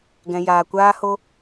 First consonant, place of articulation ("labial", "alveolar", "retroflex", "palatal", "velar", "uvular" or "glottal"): velar